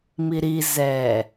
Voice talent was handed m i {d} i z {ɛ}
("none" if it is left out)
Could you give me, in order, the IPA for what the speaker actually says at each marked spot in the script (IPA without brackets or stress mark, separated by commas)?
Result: ɾ, ɛ